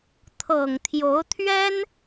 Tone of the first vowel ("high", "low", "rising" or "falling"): low